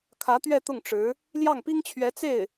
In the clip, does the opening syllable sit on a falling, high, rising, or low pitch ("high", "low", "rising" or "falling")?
rising